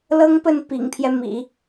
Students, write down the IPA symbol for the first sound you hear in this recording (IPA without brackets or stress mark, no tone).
l